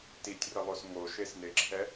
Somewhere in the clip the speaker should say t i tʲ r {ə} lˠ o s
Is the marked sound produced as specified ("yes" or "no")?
yes